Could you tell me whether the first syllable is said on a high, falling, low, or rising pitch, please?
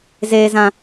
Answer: high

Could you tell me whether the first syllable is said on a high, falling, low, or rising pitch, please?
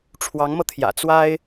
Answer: rising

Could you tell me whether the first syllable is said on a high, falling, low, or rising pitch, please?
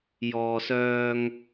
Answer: low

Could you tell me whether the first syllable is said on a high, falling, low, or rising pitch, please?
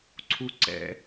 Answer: high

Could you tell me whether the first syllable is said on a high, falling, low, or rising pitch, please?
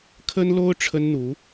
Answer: high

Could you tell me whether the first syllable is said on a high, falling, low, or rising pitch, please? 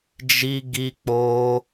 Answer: high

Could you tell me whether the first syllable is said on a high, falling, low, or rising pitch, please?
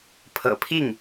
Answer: low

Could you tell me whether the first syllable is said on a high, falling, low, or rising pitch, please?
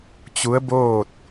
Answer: rising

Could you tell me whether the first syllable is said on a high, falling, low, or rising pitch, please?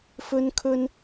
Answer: high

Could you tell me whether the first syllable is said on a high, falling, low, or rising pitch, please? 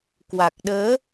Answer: low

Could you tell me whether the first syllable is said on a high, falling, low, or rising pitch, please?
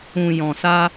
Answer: low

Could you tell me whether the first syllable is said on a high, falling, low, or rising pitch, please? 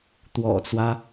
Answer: low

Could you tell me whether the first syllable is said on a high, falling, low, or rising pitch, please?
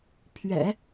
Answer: low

